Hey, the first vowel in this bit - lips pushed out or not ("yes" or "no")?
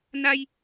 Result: no